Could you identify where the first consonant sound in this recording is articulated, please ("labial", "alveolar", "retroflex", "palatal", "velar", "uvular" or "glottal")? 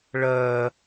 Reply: retroflex